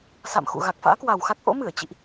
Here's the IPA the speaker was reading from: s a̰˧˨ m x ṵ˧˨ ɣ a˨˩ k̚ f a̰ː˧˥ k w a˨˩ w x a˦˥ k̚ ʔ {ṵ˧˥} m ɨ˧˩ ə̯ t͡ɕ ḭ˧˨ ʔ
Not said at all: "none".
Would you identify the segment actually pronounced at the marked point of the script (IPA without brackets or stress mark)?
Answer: o̰˧˥